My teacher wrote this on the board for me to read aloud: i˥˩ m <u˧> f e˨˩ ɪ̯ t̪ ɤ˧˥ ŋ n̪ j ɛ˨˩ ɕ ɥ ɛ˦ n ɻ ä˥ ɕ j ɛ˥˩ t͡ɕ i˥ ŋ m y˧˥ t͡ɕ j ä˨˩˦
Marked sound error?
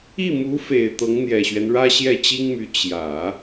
yes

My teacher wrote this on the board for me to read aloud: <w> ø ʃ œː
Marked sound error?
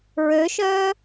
yes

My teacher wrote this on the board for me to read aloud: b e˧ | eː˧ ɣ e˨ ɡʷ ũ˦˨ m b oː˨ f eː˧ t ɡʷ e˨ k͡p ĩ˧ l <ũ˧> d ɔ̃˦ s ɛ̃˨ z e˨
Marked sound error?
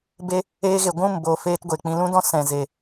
yes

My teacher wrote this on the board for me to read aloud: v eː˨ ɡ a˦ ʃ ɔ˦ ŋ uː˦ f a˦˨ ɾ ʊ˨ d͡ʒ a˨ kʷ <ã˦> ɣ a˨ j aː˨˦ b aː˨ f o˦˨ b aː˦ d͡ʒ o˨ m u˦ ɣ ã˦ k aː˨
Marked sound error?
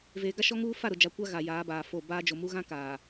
yes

